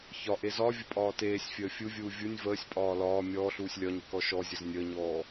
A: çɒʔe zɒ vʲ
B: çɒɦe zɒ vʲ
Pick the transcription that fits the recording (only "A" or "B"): A